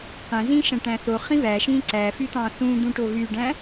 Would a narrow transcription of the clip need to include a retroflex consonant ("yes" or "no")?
yes